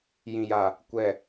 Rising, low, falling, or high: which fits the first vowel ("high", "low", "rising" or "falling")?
low